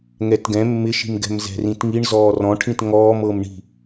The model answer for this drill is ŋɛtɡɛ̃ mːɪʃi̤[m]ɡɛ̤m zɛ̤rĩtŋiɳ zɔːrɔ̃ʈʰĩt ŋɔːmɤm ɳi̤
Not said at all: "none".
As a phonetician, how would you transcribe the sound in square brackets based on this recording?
m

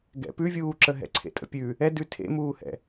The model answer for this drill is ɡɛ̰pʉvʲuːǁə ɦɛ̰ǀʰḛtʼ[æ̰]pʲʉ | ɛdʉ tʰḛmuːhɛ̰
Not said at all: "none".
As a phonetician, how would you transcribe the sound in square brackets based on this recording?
ə̰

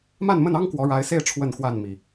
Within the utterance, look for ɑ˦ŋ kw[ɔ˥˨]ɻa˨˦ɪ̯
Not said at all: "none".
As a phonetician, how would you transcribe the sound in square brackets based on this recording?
ɔ˨˦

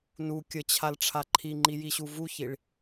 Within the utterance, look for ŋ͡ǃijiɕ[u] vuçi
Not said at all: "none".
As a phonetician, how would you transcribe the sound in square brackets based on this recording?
u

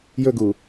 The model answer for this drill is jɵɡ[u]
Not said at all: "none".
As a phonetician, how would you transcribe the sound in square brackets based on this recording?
u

